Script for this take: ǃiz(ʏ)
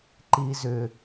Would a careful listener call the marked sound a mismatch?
no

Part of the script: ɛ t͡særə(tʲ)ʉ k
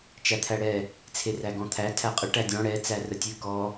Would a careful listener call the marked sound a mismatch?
no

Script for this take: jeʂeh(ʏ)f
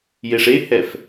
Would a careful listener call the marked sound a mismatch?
yes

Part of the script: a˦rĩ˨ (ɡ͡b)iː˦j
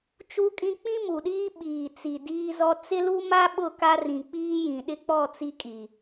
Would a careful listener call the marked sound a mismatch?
yes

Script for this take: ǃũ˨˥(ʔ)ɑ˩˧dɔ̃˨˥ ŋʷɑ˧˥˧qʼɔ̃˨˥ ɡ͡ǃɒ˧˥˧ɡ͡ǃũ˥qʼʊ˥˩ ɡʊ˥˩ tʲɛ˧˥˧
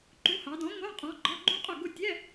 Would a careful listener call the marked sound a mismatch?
yes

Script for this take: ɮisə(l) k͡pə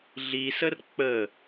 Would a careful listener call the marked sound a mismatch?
yes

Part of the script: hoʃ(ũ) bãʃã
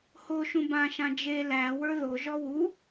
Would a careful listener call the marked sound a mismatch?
no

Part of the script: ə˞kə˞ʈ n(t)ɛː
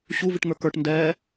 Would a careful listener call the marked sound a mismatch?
yes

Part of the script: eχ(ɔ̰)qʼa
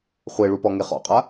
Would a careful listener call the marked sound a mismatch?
no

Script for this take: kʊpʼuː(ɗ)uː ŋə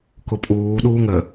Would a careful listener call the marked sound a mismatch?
no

